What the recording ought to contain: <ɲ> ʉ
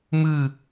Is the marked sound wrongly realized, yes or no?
yes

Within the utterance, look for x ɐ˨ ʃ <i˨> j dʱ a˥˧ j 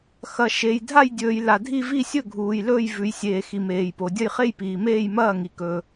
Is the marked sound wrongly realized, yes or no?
yes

